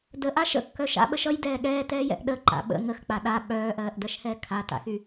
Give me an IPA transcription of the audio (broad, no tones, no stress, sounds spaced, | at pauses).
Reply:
d ə ʔ a ʃ ə̰ kː œ ʃ a̰ ɓ ə ʃ ʌ j d ɛː ɠ ɛː t ɛː j ɛ̰ ʔ ɗ ə ǃ a̰ ɓ ə̰ ŋ ə x k͡p a ɗ a ɓ œː ʔ ɜː ʔ d ɜ ʃ h ɛː kʰ a t a̰ x y